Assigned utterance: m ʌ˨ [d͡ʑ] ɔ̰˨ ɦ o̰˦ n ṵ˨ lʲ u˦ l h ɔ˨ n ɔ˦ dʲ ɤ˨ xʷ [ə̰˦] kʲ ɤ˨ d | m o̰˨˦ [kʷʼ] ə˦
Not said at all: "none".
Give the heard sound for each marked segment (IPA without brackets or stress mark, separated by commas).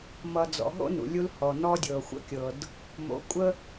d͡z, ə̰˦, kʷʼ